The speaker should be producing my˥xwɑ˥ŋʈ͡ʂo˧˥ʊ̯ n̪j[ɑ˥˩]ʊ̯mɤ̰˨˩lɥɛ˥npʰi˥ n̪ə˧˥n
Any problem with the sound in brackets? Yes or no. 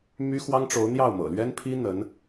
no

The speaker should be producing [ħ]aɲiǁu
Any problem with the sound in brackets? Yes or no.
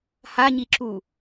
yes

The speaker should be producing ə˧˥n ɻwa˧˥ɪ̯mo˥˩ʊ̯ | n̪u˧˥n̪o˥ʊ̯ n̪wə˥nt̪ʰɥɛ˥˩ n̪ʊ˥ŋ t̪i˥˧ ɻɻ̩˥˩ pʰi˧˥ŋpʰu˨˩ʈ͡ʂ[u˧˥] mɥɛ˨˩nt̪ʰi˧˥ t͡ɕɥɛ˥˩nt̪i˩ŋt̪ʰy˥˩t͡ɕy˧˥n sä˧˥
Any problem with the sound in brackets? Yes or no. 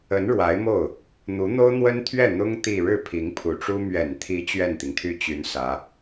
yes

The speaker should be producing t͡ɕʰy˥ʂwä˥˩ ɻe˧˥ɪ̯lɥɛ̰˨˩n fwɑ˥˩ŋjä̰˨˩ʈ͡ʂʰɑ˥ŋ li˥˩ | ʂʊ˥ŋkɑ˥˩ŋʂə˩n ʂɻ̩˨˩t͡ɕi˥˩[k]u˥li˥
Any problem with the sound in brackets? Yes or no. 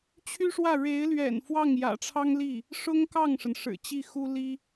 yes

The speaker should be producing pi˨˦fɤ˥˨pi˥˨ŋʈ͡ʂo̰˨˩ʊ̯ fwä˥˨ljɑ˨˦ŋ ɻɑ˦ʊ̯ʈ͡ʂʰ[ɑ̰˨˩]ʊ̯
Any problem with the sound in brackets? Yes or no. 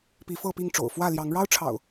no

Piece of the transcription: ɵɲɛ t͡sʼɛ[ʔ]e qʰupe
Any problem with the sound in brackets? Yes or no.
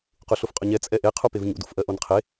no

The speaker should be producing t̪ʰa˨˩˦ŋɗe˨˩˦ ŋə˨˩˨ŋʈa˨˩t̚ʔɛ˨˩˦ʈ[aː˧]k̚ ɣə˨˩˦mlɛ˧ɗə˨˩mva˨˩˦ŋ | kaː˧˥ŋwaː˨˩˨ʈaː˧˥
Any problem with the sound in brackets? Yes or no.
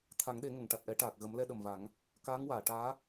yes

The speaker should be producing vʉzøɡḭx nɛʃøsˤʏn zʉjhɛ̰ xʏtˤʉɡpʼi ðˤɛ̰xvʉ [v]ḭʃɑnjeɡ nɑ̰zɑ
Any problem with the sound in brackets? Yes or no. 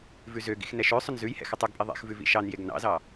no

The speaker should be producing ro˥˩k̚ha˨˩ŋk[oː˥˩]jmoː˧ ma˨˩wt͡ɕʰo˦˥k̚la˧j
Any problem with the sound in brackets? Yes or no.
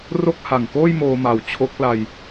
no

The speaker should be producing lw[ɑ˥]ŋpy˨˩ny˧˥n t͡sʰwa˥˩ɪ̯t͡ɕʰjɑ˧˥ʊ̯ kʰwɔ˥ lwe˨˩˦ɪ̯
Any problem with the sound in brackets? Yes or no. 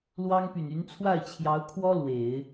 no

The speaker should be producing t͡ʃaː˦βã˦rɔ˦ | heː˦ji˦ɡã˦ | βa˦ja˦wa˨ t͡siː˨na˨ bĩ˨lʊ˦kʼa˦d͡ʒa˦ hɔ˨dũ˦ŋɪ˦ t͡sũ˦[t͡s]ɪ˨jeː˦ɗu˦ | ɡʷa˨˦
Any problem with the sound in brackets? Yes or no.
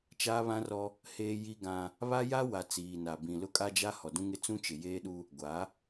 yes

